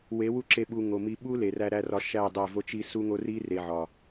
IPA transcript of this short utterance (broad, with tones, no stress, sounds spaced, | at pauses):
w e˨˦ w u˦ ǁ e˧ ɓ u˨ ŋ o˨ m i˧ ɓ u˦ l e˨ r æ˧ ɾ æ˧ r ɒ˧ ʃ æ˦˨ dˤ æ˦˨ v o˦ t͡ʃ i˦ s u˦ ŋ o˦ r i˦ r e˨ ʕ ɒ˨